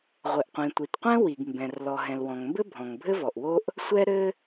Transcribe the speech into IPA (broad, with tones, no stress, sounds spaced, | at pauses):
ʁʷ ɘ˩ ʔ qʷ ĩ˩ tʷ i˩ t qʷ ɛ̃˥ w i˩ ɡ m b ɛ̃˩ r l ɔ˩ ɦ ɛ̃˩ l w ɔ̃˩ ŋ m b ɘ˥ bʱ ɔ̃˩ ŋ bʱ ɘ˥ v ɔ˩ ʔ w o˥ ʔ | sʷ ɛ˥ ɾ ɘ˥